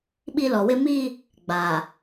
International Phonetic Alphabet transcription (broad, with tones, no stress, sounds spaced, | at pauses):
ɓ i˦ l ɔ˨ w ɪ˦ m i˦ | ɡ͡b a˨